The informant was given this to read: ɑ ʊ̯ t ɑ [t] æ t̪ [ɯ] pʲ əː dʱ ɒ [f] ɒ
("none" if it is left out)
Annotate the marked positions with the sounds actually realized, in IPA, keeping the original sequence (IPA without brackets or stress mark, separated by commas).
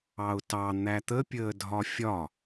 n̪, ə, fʲ